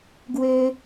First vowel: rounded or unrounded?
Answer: rounded